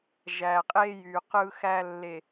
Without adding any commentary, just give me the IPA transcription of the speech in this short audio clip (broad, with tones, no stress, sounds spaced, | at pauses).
ʒ æ˨ qʼ e˦ j y˨ q ɯ˦ x æ˦ lː e˨